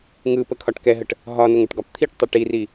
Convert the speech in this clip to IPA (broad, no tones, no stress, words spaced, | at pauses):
ŋɯ pəkʰɒʈkɛɦəʈ | ɦɒnʊŋ ʊʈɡɒpt̪ʰiʈtˤʊ ʈiri